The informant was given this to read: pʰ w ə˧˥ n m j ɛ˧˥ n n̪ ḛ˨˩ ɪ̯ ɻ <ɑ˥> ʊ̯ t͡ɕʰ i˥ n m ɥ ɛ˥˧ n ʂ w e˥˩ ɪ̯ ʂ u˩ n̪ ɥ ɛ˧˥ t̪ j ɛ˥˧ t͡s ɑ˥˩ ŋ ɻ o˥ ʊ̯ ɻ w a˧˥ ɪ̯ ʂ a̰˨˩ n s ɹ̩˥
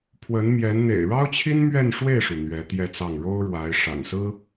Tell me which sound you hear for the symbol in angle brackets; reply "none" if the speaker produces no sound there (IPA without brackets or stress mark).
ɑ˥